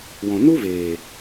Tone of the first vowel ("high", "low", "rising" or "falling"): low